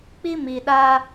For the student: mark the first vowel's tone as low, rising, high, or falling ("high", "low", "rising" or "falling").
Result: high